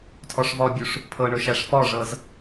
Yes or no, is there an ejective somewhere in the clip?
no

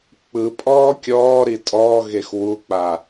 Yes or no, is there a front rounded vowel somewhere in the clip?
no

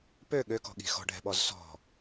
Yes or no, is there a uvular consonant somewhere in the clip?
no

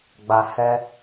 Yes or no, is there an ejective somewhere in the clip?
no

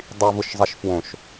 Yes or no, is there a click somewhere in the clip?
no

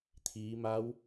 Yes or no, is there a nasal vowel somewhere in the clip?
no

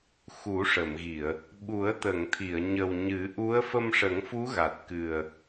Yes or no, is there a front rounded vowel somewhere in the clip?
no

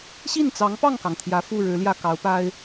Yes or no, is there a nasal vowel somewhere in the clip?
no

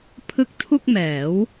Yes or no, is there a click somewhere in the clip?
no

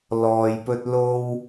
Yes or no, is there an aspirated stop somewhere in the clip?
no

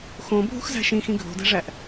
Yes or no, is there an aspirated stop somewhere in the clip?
no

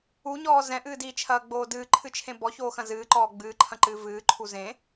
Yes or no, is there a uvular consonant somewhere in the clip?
no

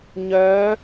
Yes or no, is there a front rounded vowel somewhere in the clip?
yes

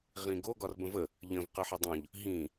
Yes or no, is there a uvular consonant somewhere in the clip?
yes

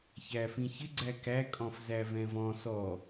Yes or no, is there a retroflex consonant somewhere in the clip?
no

